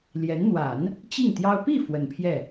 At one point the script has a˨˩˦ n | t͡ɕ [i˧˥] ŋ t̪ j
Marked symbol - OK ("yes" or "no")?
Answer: no